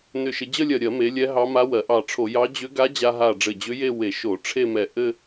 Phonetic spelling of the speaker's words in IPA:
n ʏ˧˩ ʃ ɘ˧ d͡ʑ ə˥˧ lʲ ɜ˧˩ ɾʲ ɜ˧˩˧ m e˩˧ lʲ ɛ˧˥ ɦ ɑ˧˥ m a˧˥ w ɜ˩˧ ʔ ɑ˧˩ ʈ͡ʂʰ o˧˩˧ j ɑ˧˥ d͡ʑ ʏ˧˥ ɡ a˧˥ d͡ʑ a˧ ɦ a˧˩ ɖ͡ʐ ɘ˧˩ d͡ʑ ʏ˧˥ j e˥˧ w e˧˩˧ ʃ o˧˩˧ ʈ͡ʂʰ e˥˧ m ɛ˧˩ ʔ ɘ˥˧

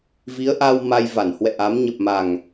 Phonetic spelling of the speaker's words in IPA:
v i˨˦ ə̯ ʔ a˧ w m a˧ j v a˧˩ n h w ɛ̰˧˨ ʔ a˨˦ m ɲ ə˨˩ p̚ m a˨˩ ŋ

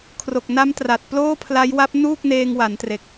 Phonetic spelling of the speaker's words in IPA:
kʰ r o˨˩ k̚ n a˦˥ m t r a˨˩ t̚ p l oː˥˩ pʰ l a˦˥ j w a˦˥ p̚ n uː˥˩ k̚ n eː˧ ŋ w a˩˦ n t r e˨˩ k̚

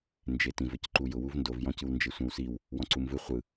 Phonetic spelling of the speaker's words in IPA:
n d͡ʒ e t ĩ v ɘ c ǃ u j ʊ w u v n d o v j ɔ̃ c ɯ w n d͡ʒ e sʷ ɛ̃ w s i w | w ɔ̃ ǀ u m v ɯ χʷ ɯ

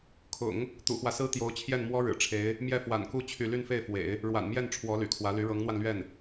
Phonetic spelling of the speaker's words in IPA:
kʰ ʊ̰˨˩˦ ŋ | t̪ ṵ˨˩ x w ä˦ s ɹ̩˥ t̪ j o˧˥ ʊ̯ t͡ɕʰ j ɛ˥˩ n m w ɔ˥ ɻ ɻ̩˨˩ ʈ͡ʂʰ e˧˥ ɪ̯ | m j ɛ˥˩ f w a̰˨˩ n k u˥˧ t͡ɕʰ y˥˧ l y˥˧ n f e˥˩ ɪ̯ f w ḛ˨˩˦ ɪ̯ | ɻ w a̰˨˩ n m j ɛ˥˩ n ʈ͡ʂʰ w ɔ˧˥ l y̰˨˩ kʰ w ä˧˥ l y˧˥ ɻ ɤ˧˥ ŋ n̪ w a˧ n l ɥ ɛ˥˩ n

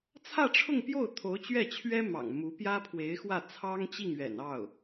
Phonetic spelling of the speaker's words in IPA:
t͡sʰ ä˥˧ ʈ͡ʂʰ ʊ˥˧ ŋ p j o˥˩ ʊ̯ t̪ʰ o˧˥ ʊ̯ t͡ɕ ɥ ɛ˥˩ t͡ɕʰ ɥ ɛ˥ m ɑ̰˨˩ ŋ m u˧˥ p j ä˥ pʰ w e˧˥ ɪ̯ x w ä˥˩ t͡sʰ ɑ˥ ŋ t͡ɕ i˥˩ ŋ ɥ ɛ̰˨˩ n ɑ˥˩ ʊ̯

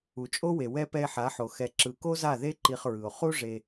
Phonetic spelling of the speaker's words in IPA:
u˨ t͡ʃʼ o˦ w e˨ w ɛ˧ p ɛ˧ e̯ ħ a˨˦ ħ o˨ x ɛ˨ ǁ ɯ˨ k o˦ z a˦˨ ð e˦ ǃ i˧ χ ɹ ɯ˨ o̯ χ u˦ ʐ e˧

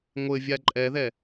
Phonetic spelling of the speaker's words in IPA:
ŋʷ ɘ vʲ a ǃʼ ɛ ð ɛ

